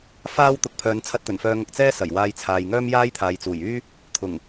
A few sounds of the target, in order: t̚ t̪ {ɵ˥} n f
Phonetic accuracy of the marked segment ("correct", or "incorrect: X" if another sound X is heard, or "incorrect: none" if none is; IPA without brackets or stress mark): incorrect: ɵ˨˩